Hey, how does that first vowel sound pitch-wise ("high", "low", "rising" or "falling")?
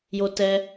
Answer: high